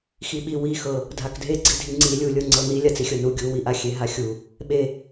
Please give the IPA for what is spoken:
xiɓi wixɤ | dʱakdʱeɡ͡ǀidʱi ŋ͡ǀi lʲulʲɤ ŋ͡ǀɤni lʲat͡sixʲɤnu ɡʲuwi ʔaxʲeɦaxʲu | ɓe

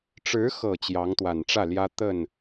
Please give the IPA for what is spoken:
ʈ͡ʂɻ̩˧˥xɤ˨˩ t͡ɕjɑ˧˥ŋt̪wa˨˩nʈ͡ʂä˥˩ljä˥ t̪ə˥˩n

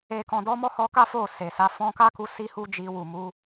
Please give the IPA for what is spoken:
e˨kɔ̃˨dɔ˨˦ mɔ˦˨hɔ˧ka˦ fo˦˨se˨sa˨˦ fɔ̃˧ka˦ku˧ si˦hu˦d͡ʒi˧ wu˨mu˨˦

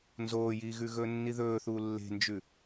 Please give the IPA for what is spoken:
nzoːjiːɣʉ ɣɵːnːiðɵːθuː lːe̤nd͡ʒʉ

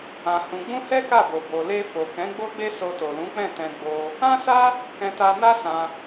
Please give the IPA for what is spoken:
ã˧hũ˧ ɡ͡bũ˦hɛ˦ka˦˨bo˨ bo˨le˧fo˨kɛ̃˨˦ ɡ͡bo˦ɡ͡be˦so˧to˨ lũ˨˦k͡pɛ̃˦˨tɛ̃˧ ɡ͡bo˧ | ã˦sa˦ | kɛ̃˧ta˧ na˦sã˧

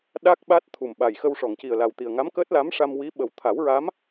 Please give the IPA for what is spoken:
ɗa˦˥k̚ ɓa˦˥t̚t̪ʰu˨˩mɓa˨˩j xə˧wʂɔ˨˩˨ŋci˨˩ə̯la˨˩w t̪i˨˩ə̯ŋa˧˥mkəː˦˥t̚la˧˥m ʂa˧mwi˧˥ɓə˨˩w t̪ʰa˨˩˦wɹa˧˥m

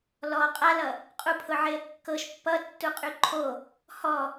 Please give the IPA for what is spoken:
lɔ qʼalʌ | qʼupʰʊʕeə̯ kːɤʃ pːʌtːuqʼy ǃʰo | hɔ

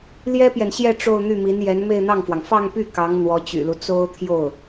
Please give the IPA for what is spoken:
ljɛ˥pjɛ˨nɕjɛ˥˧ ʈ͡ʂo˥˧ʊ̯n̪y˥˩mi˧˥n jɛ˧˥n me˥˧ɪ̯n̪ɑ˥˩ŋfwɑ˩ŋ fɑ˥˧ŋpy˥˩ kɑ˧˥ŋ n̪wɔ˧˥t͡ɕy̰˨˩lu˦ t͡so˥ʊ̯t̪ʰjo˥˩ʊ̯

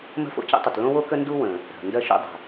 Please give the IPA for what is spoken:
mə̤˥fo̰˥cə̰˥tˤə˩t lõ˥wo˥kə˥ ndu˥wə̃˩ | ɾə̤˩ ndɜ˥ʃṵ˥dˤə̤˩

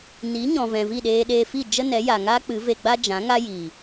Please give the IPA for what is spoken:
ni˨˦ɲɔ̃˨vɛ̃˨ vi˦˨ɗeː˧ɗeː˧ fi˦˨ d͡ʒə˦nɛ˨˦ja˨ ŋa˦ k͡pɨ˨˦ve˧ ɡ͡ba˦d͡ʒã˨˦ ŋa˦jiː˨

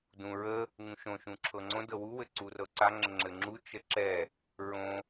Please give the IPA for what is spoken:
dũ ɹə | ŋũʃõ ʃũǁʰɤŋ͡ǀõ dɤwu wɘǀurɤǀa ŋ͡ǁəŋ͡ǁɘŋ͡ǁu t͡ʃəǁɛ | ɹõ

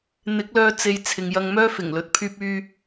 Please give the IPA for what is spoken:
n̪ɪ˨˥k̚lœː˧ t͡se˧j t͡sʰɪ˨ŋjɐ˧ŋ mœː˥fɪ˨˩ŋlɵ˨˥t̚ pʰyː˧p̚yː˧

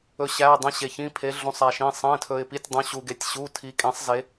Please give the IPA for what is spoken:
ɵ˩˧ɕæ˩˧˩ə̯ dˤĩ˩˧ɕe˩çĩ˩˧˩ pʰe˩˧ɮũ˩˧sˤæ˩ʃĩ˩˧˩ sˤẽ˩˧˩tʰɵ˩ɪ̯pi˩˧˩tʲdˤũ˩˧ ɕu˩ɡe˩˧tʲ ɕu˩˧˩ tʰi˩˧ kʼẽ˩˧sˤ ze˩˧

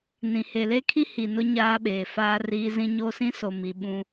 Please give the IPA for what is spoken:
nĩ˨ he˨le˦kʰi˦ hi˨nʊ˦ ɲaː˦ɓeː˨faː˦ riː˦zĩ˦ ɲo˦sĩ˦so˨mi˨ ɓũ˦

